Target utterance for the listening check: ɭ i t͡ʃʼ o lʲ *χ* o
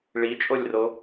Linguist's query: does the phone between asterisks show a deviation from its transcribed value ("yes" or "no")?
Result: yes